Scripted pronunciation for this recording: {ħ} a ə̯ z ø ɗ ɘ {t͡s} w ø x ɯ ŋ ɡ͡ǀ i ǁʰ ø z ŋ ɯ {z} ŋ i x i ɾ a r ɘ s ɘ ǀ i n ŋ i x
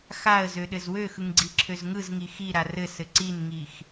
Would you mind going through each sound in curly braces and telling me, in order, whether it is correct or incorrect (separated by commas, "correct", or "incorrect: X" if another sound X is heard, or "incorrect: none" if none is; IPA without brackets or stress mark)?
incorrect: x, incorrect: z, correct